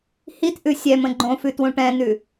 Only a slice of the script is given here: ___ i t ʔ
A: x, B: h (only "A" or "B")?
B